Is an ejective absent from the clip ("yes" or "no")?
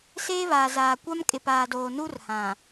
no